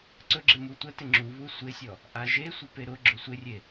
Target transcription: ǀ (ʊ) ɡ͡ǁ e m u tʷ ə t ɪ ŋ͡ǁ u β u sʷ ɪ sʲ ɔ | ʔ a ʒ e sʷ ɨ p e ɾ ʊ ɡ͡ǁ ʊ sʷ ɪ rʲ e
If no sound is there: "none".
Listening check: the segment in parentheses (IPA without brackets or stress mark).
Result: ɵ